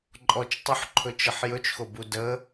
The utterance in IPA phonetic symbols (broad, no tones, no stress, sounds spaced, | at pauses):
ǃʼ ɔ t͡ʃ tˤ u ħ ǃʰ ɵ t͡ʃ ə ħ j ɵ t͡ʃ x o b u d ə